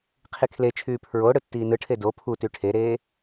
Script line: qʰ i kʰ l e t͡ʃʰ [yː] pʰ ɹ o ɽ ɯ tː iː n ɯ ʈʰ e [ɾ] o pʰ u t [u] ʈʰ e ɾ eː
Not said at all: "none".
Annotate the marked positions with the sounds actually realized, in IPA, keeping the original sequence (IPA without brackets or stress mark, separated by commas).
yː, d, y